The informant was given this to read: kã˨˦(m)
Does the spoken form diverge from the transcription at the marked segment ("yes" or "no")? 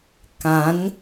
yes